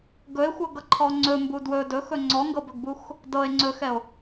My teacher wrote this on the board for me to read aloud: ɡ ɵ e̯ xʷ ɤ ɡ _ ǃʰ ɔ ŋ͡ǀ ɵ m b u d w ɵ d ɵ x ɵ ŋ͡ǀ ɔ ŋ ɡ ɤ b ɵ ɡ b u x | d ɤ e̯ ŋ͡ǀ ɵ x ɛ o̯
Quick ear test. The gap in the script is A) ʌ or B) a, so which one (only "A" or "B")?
A